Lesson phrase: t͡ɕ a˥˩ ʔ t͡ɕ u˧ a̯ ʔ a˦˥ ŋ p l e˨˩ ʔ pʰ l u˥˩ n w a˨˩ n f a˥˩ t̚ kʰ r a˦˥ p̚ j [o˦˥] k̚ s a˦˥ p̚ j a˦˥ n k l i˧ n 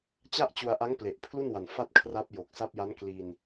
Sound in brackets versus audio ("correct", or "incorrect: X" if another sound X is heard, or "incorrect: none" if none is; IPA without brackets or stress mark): incorrect: o˨˩